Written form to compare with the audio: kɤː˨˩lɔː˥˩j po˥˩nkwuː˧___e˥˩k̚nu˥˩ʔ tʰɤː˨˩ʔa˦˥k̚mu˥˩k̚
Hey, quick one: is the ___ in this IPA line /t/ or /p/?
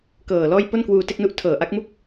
t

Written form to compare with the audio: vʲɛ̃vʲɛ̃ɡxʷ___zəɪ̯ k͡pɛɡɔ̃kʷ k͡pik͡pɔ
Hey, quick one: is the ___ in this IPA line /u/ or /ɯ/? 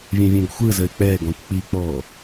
ɯ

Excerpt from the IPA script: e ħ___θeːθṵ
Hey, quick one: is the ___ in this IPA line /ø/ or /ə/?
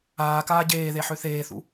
ø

